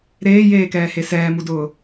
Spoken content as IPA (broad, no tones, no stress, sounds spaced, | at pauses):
ɾ eː j eː k ɛː h e s ɛː m u d ʊː